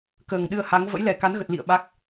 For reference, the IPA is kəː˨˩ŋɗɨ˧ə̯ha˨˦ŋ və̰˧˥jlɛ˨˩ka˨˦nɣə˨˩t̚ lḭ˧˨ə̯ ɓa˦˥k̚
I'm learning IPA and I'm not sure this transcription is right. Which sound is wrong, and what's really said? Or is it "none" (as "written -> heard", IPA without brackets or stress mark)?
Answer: none